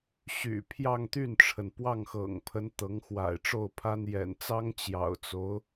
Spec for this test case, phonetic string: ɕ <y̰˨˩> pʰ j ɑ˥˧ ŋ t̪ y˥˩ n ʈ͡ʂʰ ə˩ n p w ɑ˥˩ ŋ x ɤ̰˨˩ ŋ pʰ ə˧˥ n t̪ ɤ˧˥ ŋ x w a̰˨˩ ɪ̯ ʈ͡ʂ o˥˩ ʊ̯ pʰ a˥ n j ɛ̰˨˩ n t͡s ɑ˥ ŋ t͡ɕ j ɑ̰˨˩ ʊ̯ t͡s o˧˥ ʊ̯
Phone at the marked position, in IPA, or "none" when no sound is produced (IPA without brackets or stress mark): y̰˨˩